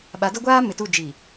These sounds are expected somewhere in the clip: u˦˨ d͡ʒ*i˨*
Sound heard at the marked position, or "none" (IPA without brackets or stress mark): i˨